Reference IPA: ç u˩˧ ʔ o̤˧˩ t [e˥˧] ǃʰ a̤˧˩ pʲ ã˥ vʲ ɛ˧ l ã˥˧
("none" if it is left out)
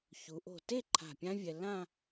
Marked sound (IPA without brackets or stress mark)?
e˥˧